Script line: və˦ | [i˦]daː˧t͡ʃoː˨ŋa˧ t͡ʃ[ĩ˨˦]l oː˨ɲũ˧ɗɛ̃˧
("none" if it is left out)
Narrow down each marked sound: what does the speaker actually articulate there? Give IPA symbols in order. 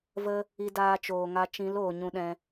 i˧, ĩ˨˦

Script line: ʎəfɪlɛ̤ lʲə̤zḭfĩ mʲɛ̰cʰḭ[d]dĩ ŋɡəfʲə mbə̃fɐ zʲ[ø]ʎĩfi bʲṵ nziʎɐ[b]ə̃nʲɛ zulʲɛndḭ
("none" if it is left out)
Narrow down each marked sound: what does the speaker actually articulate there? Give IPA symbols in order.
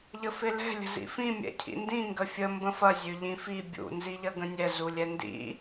n, ø, ɡ

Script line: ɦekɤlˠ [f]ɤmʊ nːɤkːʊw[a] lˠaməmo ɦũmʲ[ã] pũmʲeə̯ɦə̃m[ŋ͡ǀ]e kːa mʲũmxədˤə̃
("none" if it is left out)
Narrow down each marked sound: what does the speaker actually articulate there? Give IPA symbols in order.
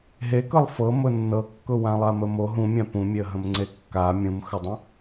f, ã, ã, ŋ͡ǀ

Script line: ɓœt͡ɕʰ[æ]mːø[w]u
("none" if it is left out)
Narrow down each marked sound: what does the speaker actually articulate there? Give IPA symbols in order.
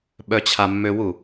a, w

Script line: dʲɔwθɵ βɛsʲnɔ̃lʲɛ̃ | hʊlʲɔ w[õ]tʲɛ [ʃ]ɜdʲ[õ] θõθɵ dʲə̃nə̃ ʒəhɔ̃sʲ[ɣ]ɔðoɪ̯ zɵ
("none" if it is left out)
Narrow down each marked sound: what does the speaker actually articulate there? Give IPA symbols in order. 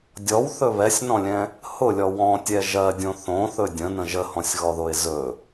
ɔ̃, ʒ, õ, ɣ

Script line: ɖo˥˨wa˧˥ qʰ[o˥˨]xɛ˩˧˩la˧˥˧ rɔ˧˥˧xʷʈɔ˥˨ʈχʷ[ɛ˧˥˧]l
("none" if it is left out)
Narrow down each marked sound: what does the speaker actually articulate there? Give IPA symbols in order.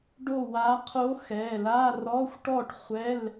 o˧˥, ɛ˧˥˧

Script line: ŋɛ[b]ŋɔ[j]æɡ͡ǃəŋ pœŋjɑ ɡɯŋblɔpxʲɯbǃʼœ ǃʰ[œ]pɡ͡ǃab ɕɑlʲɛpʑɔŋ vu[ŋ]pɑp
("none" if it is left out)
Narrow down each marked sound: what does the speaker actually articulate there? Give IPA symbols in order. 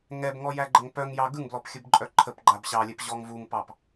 b, j, ə, ŋ

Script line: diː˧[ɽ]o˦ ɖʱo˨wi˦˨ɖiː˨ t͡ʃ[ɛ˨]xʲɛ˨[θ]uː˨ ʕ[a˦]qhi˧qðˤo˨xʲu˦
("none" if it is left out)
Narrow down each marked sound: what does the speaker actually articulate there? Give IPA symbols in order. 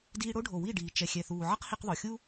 ɽ, ɛ˨, θ, ʌ˦

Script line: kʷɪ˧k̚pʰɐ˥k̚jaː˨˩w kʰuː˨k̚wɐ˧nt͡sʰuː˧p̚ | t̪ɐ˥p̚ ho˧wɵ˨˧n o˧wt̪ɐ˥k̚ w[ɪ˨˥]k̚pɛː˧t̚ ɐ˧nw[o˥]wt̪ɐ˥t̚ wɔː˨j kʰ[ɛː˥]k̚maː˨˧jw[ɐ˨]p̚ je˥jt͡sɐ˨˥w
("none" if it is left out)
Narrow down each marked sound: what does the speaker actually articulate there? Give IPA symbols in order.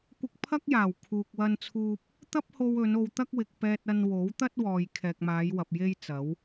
ɪ˨, o˨˥, ɛː˨, ɐ˨

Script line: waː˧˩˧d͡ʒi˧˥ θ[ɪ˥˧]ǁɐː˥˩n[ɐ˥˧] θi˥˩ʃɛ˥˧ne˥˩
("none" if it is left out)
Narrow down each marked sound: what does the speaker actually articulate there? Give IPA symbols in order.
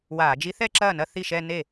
ɛ˥˧, ɐ˥˧

